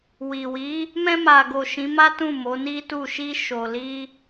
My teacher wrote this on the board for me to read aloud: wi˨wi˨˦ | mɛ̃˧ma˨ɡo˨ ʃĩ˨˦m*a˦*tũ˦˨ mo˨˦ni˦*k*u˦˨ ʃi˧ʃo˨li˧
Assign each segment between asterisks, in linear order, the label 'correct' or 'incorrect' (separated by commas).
correct, incorrect